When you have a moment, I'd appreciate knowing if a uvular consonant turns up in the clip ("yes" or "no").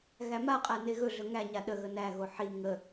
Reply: yes